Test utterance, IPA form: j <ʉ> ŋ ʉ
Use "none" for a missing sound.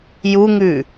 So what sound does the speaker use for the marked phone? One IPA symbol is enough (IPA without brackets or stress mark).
u